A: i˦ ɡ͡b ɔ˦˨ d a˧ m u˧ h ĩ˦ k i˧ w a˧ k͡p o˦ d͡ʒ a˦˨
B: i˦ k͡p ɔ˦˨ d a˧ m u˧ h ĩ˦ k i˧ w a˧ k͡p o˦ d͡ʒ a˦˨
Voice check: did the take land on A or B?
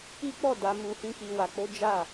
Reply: B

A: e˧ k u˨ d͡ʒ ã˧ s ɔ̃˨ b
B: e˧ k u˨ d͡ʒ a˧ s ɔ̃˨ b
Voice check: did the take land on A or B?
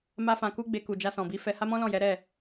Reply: B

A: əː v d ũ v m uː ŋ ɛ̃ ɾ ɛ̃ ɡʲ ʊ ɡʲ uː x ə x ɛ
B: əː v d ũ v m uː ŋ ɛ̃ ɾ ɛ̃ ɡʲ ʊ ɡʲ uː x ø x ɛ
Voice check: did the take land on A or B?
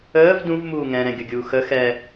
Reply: A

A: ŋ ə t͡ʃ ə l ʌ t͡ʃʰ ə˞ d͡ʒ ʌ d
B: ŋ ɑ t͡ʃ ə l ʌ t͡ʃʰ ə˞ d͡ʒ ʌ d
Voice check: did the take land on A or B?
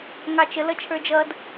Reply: B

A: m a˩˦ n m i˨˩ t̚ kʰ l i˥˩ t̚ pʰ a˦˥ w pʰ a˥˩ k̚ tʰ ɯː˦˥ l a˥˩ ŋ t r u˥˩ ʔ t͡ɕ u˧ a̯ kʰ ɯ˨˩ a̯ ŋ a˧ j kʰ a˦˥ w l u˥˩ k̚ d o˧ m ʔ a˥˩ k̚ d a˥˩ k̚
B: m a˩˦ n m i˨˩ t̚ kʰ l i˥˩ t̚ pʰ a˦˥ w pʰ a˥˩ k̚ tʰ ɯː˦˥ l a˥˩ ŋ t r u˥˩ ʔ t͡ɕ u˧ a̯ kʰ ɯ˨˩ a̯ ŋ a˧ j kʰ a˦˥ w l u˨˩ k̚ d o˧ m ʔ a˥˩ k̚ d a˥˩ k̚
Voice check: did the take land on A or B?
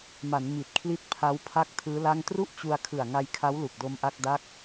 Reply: B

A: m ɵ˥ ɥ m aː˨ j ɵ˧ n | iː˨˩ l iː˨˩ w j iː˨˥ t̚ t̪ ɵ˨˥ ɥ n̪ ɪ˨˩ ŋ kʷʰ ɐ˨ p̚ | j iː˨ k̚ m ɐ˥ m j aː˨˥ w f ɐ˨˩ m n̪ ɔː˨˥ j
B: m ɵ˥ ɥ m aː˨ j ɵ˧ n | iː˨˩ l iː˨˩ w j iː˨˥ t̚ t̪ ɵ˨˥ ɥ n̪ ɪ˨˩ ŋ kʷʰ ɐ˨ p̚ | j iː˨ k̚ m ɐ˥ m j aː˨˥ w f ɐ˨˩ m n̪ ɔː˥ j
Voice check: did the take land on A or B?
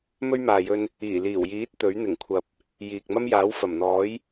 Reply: A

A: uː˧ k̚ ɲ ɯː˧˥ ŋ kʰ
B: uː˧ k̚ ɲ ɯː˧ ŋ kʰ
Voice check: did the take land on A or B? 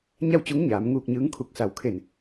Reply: A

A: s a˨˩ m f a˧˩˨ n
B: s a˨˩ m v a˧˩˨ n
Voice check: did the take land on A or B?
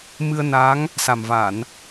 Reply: B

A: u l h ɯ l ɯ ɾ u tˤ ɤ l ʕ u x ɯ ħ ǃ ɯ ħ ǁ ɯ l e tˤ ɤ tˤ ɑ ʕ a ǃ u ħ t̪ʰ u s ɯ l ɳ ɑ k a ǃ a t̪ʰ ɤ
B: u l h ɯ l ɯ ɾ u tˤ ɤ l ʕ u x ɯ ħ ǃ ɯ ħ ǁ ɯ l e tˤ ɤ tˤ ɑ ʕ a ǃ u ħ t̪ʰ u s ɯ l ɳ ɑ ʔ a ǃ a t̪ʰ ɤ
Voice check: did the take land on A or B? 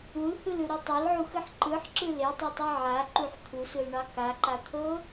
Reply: A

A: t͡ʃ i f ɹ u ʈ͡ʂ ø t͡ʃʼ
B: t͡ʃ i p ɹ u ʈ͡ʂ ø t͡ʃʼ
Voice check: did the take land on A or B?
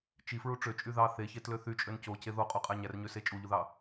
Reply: A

